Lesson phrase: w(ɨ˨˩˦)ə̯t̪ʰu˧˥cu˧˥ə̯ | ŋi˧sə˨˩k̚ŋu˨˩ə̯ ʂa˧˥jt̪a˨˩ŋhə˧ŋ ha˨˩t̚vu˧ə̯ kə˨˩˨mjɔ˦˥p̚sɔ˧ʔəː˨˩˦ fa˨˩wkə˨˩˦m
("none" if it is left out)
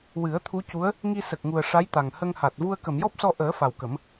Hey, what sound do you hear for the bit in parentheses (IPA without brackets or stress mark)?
ɨ˨˩˦